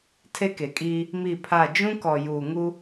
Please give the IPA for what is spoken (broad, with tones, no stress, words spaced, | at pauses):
tʰe˦ke˨kʼiː˦ | mi˦˨pʰa˦˨ d͡ʒũ˦kɔ˨ juː˨ ŋu˦